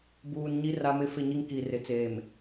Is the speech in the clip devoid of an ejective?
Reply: yes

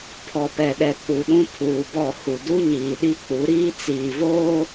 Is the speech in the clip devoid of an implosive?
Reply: no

